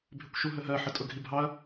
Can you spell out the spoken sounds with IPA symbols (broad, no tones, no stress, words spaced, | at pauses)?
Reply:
bʱɪkʷʃuɦəɦɜ ħətʼʊɡʱibʱɑɐ̯